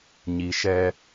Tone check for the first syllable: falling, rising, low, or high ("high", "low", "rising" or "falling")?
low